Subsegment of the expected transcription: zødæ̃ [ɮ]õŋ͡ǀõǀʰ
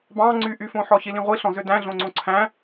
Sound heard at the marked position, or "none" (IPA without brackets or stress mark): ɮ